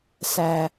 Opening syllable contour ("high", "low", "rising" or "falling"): low